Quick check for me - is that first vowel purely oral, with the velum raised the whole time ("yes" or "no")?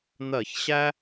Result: yes